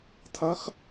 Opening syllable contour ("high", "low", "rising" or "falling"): rising